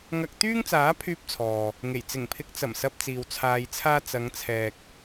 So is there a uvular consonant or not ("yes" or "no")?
no